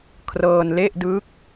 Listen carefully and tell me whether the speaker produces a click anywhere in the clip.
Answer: no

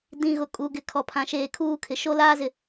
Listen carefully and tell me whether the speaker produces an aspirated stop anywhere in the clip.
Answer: yes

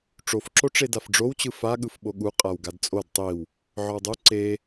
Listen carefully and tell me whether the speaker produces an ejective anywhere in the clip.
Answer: yes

